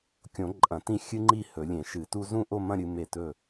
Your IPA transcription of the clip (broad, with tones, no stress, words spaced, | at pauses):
kʲõ˨˩˦ ǃʼɐ̃˨˩˦tĩ˦˨ xʲɨ˦ŋ͡ǃi˦˨ hɵ˨˩˦lʲẽ˨˩˦ʃɨ˨˩˦tu˦ zũ˦˨ʔo˦˨mɐ̃˦˨ ɾʲɨ˦me˦˨ tɵ˦˨